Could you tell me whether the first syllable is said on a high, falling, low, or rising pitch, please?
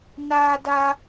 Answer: high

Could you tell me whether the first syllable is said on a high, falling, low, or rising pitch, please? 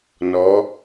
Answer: rising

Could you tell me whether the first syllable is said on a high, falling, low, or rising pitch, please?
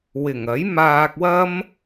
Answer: low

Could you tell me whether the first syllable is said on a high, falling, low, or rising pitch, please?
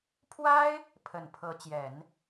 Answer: high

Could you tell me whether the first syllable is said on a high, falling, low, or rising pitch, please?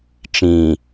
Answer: low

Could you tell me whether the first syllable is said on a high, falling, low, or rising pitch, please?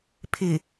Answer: low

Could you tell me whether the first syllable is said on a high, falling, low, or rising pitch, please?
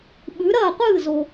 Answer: rising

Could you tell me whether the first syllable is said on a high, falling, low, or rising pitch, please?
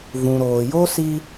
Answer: low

